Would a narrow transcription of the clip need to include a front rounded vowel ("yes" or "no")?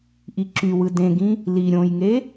yes